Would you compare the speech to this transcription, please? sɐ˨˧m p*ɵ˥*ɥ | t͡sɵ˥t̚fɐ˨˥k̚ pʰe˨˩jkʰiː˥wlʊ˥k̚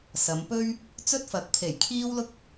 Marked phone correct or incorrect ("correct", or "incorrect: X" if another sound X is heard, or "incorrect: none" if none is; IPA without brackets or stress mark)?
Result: correct